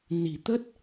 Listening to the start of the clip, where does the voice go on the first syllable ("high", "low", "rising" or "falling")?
low